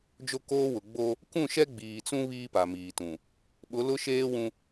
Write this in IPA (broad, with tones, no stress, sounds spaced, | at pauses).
d͡ʒ o˦ k oː˦ w ʊ˨ ɡ͡b o˦ | k ũ˦˨ ʃ ɛ˦ ɡ͡b iː˨ t͡s ũ˦ β iː˦ p a˨ m iː˨ t ũ˨ | ɓ ʊ˨˦ l ʊ˦ ʃ eː˦ w ũ˦